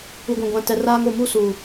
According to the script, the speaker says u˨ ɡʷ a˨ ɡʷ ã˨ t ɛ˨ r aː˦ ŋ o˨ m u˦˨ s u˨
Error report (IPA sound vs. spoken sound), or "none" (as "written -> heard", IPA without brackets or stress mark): a˨ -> ã˨